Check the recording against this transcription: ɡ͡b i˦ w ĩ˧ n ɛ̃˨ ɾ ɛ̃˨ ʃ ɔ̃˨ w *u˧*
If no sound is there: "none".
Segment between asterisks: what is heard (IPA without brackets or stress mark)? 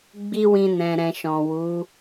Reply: u˨˦